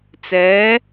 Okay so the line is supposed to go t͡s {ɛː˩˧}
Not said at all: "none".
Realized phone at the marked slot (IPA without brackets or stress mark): ɛː˩˧